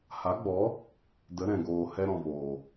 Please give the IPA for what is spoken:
h a˨˦ ɡ͡b ɔ˨˦ | d ə˨˦ ɾ ɛ̃˨ ɡ oː˨ h ɛ˧ ɾ ɔ̃˨ v oː˨

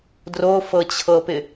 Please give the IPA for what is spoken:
d r o f ɤ t͡ɕʰ ɤ p ɪ

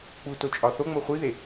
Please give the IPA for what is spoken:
k͡p u t o t͡ʃʼ ɒ θ o ŋ͡m o χʷ i ð e

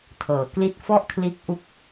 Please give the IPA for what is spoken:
tʰ ɤː˩˦ k l i˥˩ t̚ f ɔ˥˩ ʔ kʰ l iː˦˥ k̚ ʔ u˦˥ k̚

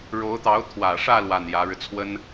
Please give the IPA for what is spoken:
ɻ o˧˥ ʊ̯ t̪ ɑ˧˥ ʊ̯ t̪ʰ w ä˨˩ ʂ ä˥˧ l w a˥˩ n j ä˧˥ ɻ ɻ̩˧ t͡sʰ w ə˥ n

